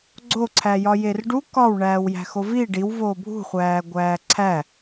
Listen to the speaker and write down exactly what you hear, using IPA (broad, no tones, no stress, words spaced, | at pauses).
ɡ͡ǀoǀʰæjɒ jerɖu kɒw ɳæːwjæ̤xovi ɖiw voːbʱṳ χʷæːɡʷæːǀʰæ